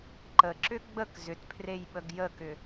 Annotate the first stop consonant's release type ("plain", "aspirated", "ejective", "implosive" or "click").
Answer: click